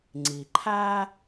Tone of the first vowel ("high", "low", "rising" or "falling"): low